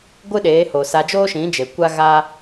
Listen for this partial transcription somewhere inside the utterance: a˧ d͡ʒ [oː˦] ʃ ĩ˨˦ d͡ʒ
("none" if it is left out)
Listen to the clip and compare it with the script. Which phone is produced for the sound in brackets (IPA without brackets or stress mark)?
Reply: oː˦